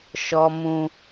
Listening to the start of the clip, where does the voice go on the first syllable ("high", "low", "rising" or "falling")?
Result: high